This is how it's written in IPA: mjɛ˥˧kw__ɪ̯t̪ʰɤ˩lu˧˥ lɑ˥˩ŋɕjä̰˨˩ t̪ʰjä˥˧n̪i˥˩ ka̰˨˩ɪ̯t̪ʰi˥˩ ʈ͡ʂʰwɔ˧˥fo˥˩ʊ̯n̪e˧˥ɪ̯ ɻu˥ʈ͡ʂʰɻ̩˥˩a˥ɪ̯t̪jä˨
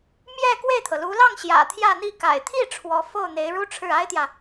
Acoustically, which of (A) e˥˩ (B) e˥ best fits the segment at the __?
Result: A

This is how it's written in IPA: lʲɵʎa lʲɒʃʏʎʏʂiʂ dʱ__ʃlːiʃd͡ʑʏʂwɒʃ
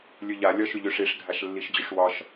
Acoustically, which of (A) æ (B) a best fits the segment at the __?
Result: B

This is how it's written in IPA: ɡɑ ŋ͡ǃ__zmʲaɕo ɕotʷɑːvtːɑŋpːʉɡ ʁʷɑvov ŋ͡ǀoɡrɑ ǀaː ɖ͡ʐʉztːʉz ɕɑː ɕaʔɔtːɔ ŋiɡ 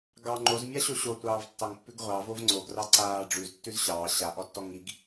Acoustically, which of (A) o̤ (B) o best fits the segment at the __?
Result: B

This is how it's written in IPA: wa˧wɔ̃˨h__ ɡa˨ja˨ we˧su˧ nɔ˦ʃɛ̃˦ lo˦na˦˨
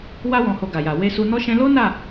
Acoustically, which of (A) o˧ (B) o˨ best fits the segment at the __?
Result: B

